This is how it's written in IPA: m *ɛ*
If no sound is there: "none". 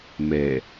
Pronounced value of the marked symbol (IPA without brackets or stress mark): ɛ